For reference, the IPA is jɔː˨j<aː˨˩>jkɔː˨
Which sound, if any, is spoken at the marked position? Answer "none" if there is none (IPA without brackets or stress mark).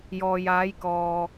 aː˨˧